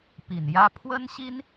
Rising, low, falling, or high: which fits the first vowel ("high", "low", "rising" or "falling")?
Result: low